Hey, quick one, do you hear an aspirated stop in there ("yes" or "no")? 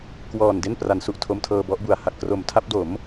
yes